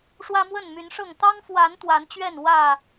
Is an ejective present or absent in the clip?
absent